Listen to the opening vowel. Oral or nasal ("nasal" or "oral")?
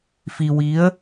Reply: oral